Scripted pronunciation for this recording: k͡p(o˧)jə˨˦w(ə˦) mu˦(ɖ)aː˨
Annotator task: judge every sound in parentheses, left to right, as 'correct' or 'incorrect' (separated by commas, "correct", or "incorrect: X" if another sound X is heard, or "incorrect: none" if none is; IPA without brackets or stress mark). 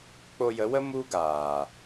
correct, correct, incorrect: ɡ